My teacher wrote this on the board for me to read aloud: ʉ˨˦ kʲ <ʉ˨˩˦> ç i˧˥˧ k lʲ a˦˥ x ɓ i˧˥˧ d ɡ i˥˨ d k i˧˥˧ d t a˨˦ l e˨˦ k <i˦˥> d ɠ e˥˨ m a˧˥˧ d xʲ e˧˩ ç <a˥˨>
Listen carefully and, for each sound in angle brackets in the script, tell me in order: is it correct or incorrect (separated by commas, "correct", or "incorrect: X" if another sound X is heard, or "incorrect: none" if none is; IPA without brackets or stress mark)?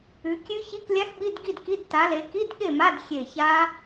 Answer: incorrect: ʉ˦˥, incorrect: i˧˥˧, incorrect: a˦˥